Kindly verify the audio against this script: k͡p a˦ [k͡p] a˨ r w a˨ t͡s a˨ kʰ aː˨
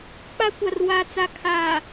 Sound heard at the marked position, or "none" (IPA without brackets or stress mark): kʷ